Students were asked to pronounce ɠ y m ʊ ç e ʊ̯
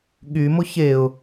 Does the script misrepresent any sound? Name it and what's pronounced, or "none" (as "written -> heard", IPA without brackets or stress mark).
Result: none